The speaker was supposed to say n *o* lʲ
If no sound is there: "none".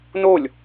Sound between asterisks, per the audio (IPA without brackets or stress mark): o